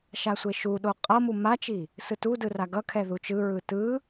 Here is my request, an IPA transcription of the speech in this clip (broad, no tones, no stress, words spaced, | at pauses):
ʃasʷeʃuɗo qʼʌmu mat͡ʃi | sɯtudɯ raɡʌkʰɛ ðut͡ʃɯɹɯ tɯ